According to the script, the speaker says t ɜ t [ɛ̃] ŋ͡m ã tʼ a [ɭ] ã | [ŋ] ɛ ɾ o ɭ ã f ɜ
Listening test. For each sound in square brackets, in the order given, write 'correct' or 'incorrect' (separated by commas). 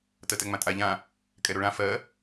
incorrect, incorrect, incorrect